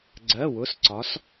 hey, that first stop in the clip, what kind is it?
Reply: click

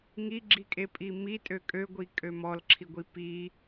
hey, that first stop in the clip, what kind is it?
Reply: click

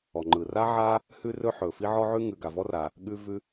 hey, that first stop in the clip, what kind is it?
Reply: click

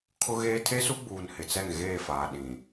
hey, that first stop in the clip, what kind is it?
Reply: aspirated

